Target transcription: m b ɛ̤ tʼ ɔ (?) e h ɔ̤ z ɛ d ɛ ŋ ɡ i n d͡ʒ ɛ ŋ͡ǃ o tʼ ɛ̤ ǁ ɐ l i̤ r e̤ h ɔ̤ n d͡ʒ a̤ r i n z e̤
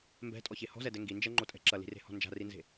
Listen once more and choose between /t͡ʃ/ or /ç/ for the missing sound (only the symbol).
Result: ç